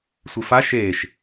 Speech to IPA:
sʷifa ʃeːʃ

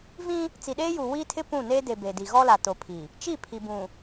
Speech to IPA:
vĩ˦ | t͡si˨ɗeː˦ju˨ wi˦tʰɪ˦ pũ˦˨ ne˦ de˨ be˨di˨ ɣɔ˦la˨to˨pʰi˨ | t͡ʃi˦˨ pʰi˨bũ˨

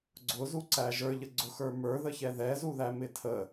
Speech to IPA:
ɡ͡ǀʊzuǀæ ʒə˞ʎə ɡ͡ǀʊxə˞ mə˞ðəçɛ ðɛzuðæmɪ tʰə

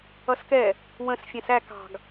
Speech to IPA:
ʌskɛ | wə̃s fʲæ̃sæ kɑ̤ɡ

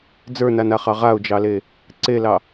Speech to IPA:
d͡zə˞nanaχɑ ʁaʊ̯d͡ʒɑle | ǀelɑ

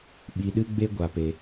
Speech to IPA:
ɓi˨ɗɨ˧ɡ͡be˧ ɡʷa˧pe˧

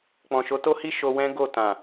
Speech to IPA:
k͡pɔ̃˨ʃo˨˦to˦hi˦ ʃo˧wɛ̃˦ ɡo˦˨tã˨

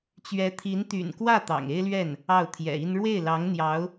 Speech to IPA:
t͡ɕɥɛ˧˥t̪ʰi˧˥n t̪y̰˨˩nkwä˥˩ t̪ɑ̰˨˩ŋe˥ɪ̯lɥɛ˥˩n | ɑ˥˩ʊ̯t̪ʰjɛ̰˨˩i˥n ɻwe˥˩ɪ̯lɑ˧˥ŋ n̪jɑ˧˥ʊ̯

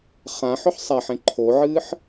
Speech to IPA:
χã ħɵħsˤaħẽ ǃʰoʕɨːħ

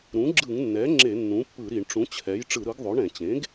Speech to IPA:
ɾũ˩˥ɡ͡ǁɯ˧˩˧ŋnːɛ˩˥ ŋ͡ǁe˧˩˧ nːũ˩˥pːɯ˧˩˧ɾi˧˩˧ɳʈ͡ʂũ˩˥ t͡ɕʰɛ˩˥j ʈ͡ʂɯ˧˩˧ɾɯ˩˥ɡðˤo˩˥ɳɛ̃˧˩˧ t͡ɕẽ˩˥ɡ

